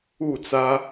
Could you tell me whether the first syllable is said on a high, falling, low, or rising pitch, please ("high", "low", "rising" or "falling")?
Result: falling